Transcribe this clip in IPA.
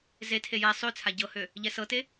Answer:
z e tʰ e j ɛ sˤ ø t͡sʰ a ɟ ɤ h ø | ʎ ɛ s ɤ t e

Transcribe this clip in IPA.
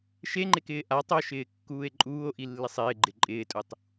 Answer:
ʃ e ŋ͡ǃ e k ɪː ʔ a tˤ o ʃ ɪː kː uː e̯ ǃʼ uː o̯ ʔ i lː ɪ sˤ ɪː ɡ͡ǃ ɪ ǃʼ ɪː tʼ u tˤ

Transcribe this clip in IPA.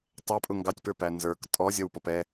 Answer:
tˤ æ pʼ ʊ ŋ ɡ ɑ tʲ p ə˞ p æ n z ə˞ k tʼ ɔ zʲ ʌ w p ɔ p ɛ

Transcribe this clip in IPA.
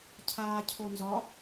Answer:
cʰ aː cʰ o n z ɒ

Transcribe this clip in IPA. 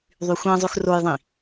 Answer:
ðˤ y xʷ æ̃ zˤ ʉ x r o j ðˤ ĩ

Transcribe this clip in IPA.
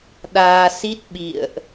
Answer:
ɗ aː˧ s i˦˥ t̚ ɓ ḭ˧˨ ə̯ ʔ

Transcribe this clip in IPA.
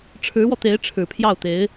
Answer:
ʈ͡ʂʰ ɻ̩˧˥ w ɔ˧ t̪ e˧˥ ɪ̯ ʈ͡ʂʰ ɻ̩˨˩ pʰ j ɑ˥˩ ʊ̯ t̪ e˧˥ ɪ̯

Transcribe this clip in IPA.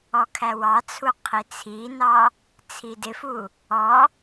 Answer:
ɔ kʰ æ w ɑ t͡sʰ u qʰ i t͡sʰ i n ɑ | t͡sʰ i d ɪ f u | ɔ

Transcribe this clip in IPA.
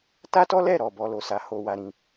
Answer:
t a˦ t ɔ˦ l ɛ˦˨ ɾ ɔ˨ b ɔ˨ l o˨ s a˨ h o˧ w a˧ ɾ ĩ˧

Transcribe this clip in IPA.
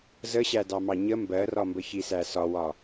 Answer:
z ə ɕ æ d ɑ m ɑ ɲ ə m b ɜ r ɒ m b ə ç i s æ s ɒ w ɒ

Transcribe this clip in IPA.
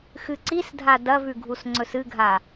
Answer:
x ɨ ǀ i s dʱ a d ɐ v ʉ ɡʱ u s ŋ͡ǀ ɵ s ɨ ɡʱ a

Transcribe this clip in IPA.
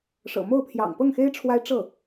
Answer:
ʂ ɤ̰˨˩ m o˥˩ ʊ̯ pʰ j ɑ̰˨˩ ŋ p ɤ˥˩ ŋ x e˥ ɪ̯ ʈ͡ʂʰ w a˥ ɪ̯ ʈ͡ʂ ɤ˥˩

